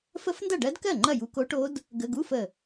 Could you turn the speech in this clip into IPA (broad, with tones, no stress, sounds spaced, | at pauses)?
f ə˦˥ f n d ɐ˥˩ ɖ ɜ˦˥ d k ɜ˥˩ ŋ͡ǃ ɐ˥˩ j u˧˥˧ k o˦˥ ʈ o˦˥ d | ɡ ə˧˥˧ ɡ u˧˥˧ f ə˧˩